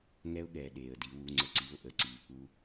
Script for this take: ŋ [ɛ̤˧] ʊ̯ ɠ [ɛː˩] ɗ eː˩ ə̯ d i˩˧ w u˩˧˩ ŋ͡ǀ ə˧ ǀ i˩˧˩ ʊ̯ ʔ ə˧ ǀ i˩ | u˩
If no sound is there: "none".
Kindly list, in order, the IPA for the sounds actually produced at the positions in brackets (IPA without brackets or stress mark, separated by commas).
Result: ɛ˧, ɛː˩